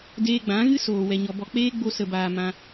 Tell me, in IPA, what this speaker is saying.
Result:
d eː˧ ɡ͡b ã˨˦ ɣ ɨ˦ s oː˨ w ɛ˨ ɲ ɔ˨ b ɔ˨ k͡p eː˦ ɡ͡b o˧ s ə˨ b aː˨ m ã˧

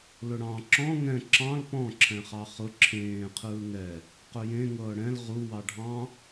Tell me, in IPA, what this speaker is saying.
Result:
l ʊ ɽ ɑ̃ ǁ ɔ̃ ŋ ɛ̃ ǁ ɑ̃ l p ɔ̃ ǁʰ ɛ̃ χ ɑ χ ʊ ǁʰ ẽː qʰ ɯː ŋ ɛ | q ʊ j ẽ ŋ ɤː ɽ ɛ̃ l ʁ u w ɑ ɖʱ ɑ̃

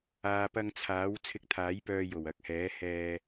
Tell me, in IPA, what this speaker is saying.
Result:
aː˨ p ɐ˧ ŋ t͡sʰ aː˨˥ w t͡sʰ ɪ˧ k̚ t̪ʰ aː˨˥ j p œː˧ j o˨˩ w ɐ˨˥ k̚ h ɛː˨˥ h ɛː˧

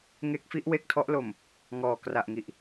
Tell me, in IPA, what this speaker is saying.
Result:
ŋ e˦˥ k̚ f i˦˥ ʔ w e˦˥ k̚ tʰ ɔ˦˥ ʔ l o˨˩ m | ŋ ɔː˨˩ k r a˨˩ ʔ ŋ i˨˩ ʔ

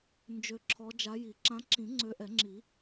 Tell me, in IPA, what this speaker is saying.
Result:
n d͡ʒ ø˨˦ ǁʰ ɔ˨˦ d͡ʒ a˨˦ j i˨˩˦ ǁ ã˨˦ ǁ ĩ˨˩˦ ŋ͡ǀ ø˨˦ ʔ ɛ˨˩˦ ŋ͡ǁ i˨˩˦

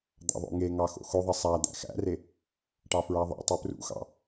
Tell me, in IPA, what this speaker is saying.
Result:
d̪ ɑ̰ ðˤ o̰ ŋ e ŋ ɑ x o̰ x o ðˤ ɘ sˤ æ d̪ æ̰ x æ̰ r e | ʈ ɑ f ɹ æ ðˤ ḛ tˤ u p r ṵ x ɑ̰

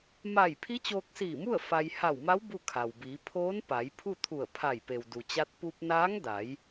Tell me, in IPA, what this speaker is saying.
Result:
m a˧˩ j pʰ i˧˥ t͡ɕ oː˧ k̚ s iː˧˩ m u˥˨ ə̯ f a˧ j h a˧˩ w m a˧˥ w b u˥˨ kʰ a˩ w b iː˩˧ pʰ oː˧˥ n p a˩˧ j pʰ u˥˨ t̪ʰ u˧˩ ə̯ pʰ a˧˩ j p e˩ w d u˩ t͡ɕ a˧˥ t̚ p u˧ p̚ n aː˧˥ ŋ d a˩˧ j

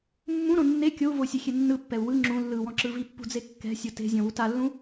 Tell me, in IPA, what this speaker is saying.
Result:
mː ũ ɾ õ nː e kʲ o u̯ v o sʲ e xʲ e nː ɯ pː ɛ u̯ w ɯ ŋ͡ǁ ũ lː ɯ w ɔ̃ ǁ ɯ v i pː ṳ d͡z e kː ɛ̤ sʲ o t e̤ zʲ ɔ̃ w u t a lː ũ

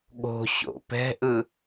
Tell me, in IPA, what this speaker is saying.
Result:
ɠ o̤ ɕ o̰ p ɛ̤ ʔ ɯ

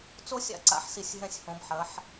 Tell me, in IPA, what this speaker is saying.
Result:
t͡s o˥ sʲ a̰˥ ǀ a̰˥ ħ s i˧˩ sʲ ɦ ɛ̃˧ sʲ h õ˩˧ b ħ ɐ˩˧ ħ

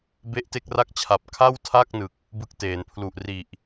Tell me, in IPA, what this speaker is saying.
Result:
b e˥˩ ʔ t e˥˩ k̚ r a˥˩ k̚ t͡ɕʰ a˨˩ p̚ kʰ a˥˩ w tʰ a˥˩ k̚ n ɯ˨˩ k̚ | b ɯ˥˩ k̚ t eː˩˦ n pʰ l u˨˩ ʔ r i˨˩ ʔ

